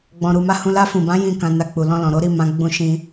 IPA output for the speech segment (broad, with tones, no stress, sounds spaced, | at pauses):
ɡ͡b ɔ̃˧ ɾ u˧ m a˦ h ũ˦ l a˧ f ũ˨ b ã˨˦ j ĩ˦˨ k ã˧ n a˧ k͡p u˨ l ɔ̃˧ l ɔ̃˨ ɾ o˨˦ ɾ i˦˨ m ã˧ ɡ͡b ũ˧ ʃ ĩ˧